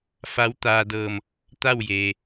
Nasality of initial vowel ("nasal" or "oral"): oral